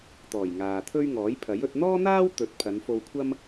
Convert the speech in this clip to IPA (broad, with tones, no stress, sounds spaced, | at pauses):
t̪ ɔː˨˩ j ŋ aː˨ t̪ʰ ɵ˥ ɥ ŋ ɔː˨˥ j pʰ ɐ˨˥ j ɵ˨˥ t̚ n̪ ɔː˥ n̪ aː˥ w t̪ ɵ˨˥ t̚ pʰ ɐ˨˧ n f o˧ w kʷʰ ɐ˥ m